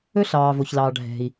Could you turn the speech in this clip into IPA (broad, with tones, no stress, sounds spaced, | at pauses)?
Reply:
ɵ˥ ɬ ɑː˩ v o˩ ç l ɑː˩ ɖʱ ɛ̤˩ i̯